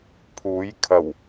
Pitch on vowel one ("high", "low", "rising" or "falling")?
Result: rising